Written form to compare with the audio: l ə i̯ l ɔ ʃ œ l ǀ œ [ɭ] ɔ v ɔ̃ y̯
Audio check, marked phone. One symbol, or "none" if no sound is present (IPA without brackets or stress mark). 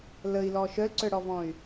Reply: ɽ